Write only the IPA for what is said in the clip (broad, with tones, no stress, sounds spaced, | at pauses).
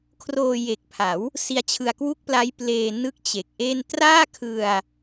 kʰ r oː˧ j e˨˩ k̚ pʰ a˩˦ w | s i˦˥ a̯ t͡ɕʰ ɯ˧ a̯ k w u˥˩ k̚ p l a˦˥ j p l eː˧ n ɯ˥˩ k̚ t͡ɕ e˨˩ k̚ ʔ e˥˩ n t r aː˥˩ kʰ ɯ˧ a̯